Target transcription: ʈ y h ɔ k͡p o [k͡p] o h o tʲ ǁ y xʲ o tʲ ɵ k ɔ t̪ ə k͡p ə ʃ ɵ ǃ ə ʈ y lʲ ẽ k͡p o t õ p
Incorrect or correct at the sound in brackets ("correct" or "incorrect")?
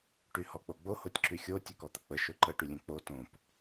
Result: incorrect